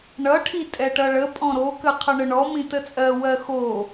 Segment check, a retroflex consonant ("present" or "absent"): present